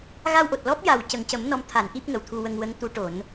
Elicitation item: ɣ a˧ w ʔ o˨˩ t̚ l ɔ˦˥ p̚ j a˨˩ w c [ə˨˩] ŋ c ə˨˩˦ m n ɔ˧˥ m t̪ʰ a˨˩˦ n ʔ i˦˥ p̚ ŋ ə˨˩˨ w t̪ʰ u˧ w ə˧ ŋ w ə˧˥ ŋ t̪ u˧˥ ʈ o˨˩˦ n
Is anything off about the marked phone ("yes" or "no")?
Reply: no